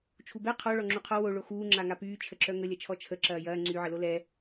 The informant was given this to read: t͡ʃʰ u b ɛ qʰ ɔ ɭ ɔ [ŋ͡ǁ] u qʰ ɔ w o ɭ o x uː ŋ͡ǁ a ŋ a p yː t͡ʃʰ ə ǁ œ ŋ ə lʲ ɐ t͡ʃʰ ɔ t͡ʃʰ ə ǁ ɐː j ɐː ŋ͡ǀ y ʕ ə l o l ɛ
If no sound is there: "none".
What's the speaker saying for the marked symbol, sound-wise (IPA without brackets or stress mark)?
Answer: ŋ͡ǁ